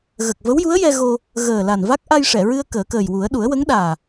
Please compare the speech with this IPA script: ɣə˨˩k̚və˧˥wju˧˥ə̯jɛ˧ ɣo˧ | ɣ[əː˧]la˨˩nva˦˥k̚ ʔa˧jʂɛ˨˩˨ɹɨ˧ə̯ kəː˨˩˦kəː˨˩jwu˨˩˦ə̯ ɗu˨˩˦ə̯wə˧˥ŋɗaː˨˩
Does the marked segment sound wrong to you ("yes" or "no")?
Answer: yes